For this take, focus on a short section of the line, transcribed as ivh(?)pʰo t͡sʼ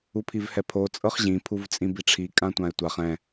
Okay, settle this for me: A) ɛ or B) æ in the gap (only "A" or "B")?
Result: A